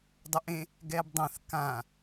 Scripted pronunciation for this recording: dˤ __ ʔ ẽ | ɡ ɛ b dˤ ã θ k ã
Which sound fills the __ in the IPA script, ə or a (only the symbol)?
ə